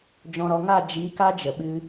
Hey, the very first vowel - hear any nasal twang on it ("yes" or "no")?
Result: yes